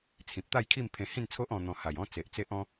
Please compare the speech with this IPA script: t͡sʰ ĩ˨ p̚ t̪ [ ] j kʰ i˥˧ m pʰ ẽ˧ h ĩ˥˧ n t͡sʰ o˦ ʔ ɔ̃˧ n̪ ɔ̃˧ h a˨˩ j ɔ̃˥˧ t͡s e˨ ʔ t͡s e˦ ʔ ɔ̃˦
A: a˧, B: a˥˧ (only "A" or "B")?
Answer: B